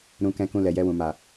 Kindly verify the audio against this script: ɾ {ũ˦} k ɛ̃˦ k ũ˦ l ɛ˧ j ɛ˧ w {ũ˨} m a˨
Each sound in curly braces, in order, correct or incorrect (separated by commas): correct, correct